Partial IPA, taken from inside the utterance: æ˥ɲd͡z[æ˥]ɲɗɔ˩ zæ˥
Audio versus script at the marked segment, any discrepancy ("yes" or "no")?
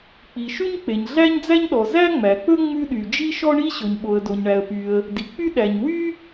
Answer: no